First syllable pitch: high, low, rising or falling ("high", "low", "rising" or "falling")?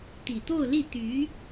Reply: low